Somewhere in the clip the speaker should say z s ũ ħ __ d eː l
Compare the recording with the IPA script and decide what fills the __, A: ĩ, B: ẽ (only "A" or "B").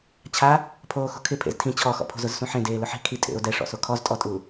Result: B